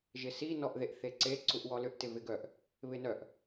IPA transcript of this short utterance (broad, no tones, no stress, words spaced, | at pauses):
ʒɪsi nɔʔðeʔθeǀe ǀuʔwɔlʏʔ tɪvɪɡœʔ | βɪnœʔ